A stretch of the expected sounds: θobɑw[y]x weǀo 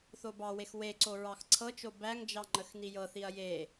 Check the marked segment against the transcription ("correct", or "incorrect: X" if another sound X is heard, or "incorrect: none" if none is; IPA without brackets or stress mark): incorrect: e